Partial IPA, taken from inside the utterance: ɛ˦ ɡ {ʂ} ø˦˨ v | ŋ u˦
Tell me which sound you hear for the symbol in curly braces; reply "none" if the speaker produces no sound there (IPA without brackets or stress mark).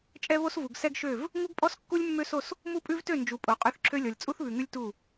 ʃ